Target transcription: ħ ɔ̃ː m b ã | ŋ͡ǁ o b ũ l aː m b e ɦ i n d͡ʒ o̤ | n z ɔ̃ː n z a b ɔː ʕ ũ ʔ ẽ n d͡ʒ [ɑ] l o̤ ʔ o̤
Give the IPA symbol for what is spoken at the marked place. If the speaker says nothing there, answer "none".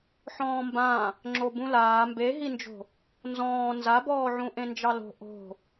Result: ɑ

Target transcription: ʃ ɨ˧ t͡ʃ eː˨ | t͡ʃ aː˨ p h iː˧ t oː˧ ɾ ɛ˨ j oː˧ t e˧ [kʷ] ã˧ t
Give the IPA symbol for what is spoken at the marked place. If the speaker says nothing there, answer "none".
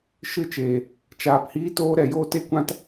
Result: kʷ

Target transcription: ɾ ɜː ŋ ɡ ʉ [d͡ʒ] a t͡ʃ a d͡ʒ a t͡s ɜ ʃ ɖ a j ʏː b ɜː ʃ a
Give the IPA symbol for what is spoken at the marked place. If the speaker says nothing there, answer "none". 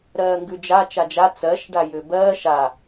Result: d͡ʒ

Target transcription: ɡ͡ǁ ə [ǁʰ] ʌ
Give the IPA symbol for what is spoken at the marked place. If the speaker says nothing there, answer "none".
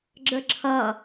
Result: ǁʰ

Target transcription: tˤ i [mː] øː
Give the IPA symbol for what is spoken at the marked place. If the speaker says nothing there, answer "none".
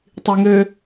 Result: ŋ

